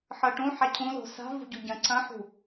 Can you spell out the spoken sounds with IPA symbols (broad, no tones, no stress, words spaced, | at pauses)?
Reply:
ħɤʈũ ħacʰũlo̤ sa̤ vṳɟuɟɐ̃ ǀʰɐ̃ħṳ